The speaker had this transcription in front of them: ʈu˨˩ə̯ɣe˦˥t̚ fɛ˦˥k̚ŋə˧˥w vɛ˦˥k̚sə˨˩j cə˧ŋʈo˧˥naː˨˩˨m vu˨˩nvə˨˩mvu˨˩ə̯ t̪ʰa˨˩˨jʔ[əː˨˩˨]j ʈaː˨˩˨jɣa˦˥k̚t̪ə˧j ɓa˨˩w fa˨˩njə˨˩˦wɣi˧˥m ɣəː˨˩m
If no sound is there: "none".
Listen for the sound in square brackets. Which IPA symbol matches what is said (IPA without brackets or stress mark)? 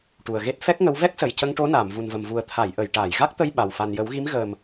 ə˨˩˨